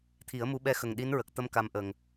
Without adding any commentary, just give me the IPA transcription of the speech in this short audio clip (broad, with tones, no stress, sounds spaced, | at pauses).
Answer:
t̪ʰ i˨˩˦ ə̯ m u˧˥ ɓ ɛ˧ x ə˨˩ ŋ ɗ i˧˥ n ɹ ə˨˩ k̚ t̪ ə˧ m k a˧ m ʔ ə˨˩ ŋ